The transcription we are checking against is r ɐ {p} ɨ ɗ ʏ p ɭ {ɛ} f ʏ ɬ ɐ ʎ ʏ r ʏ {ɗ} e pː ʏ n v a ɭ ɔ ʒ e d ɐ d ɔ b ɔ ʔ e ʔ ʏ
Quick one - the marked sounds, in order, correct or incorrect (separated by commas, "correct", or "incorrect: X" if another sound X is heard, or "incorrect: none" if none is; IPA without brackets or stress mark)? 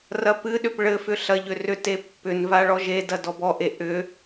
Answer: correct, incorrect: ɘ, incorrect: t